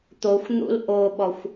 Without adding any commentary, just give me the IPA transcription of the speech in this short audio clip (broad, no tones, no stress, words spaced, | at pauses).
t̪oxʷn̪ṵl ʔoɓɔxʷ